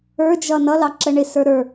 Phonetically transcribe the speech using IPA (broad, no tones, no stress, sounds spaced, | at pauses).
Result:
ə˞ d͡ʒ ʌ n ʌ l ɑ ǁ ə ɳ ɪ s ə˞ ɾ ə˞